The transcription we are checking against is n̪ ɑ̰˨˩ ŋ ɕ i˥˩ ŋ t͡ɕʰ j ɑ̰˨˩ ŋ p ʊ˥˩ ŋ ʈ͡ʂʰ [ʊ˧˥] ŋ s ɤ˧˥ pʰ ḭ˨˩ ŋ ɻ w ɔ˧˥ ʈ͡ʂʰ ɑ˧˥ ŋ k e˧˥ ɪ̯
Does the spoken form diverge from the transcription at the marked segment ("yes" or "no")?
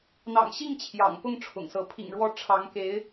yes